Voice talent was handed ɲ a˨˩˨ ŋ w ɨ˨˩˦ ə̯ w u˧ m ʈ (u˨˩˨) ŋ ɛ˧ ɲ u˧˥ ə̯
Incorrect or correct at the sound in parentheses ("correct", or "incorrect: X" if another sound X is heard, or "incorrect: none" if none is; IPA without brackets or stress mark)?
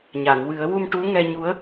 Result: incorrect: u˧˥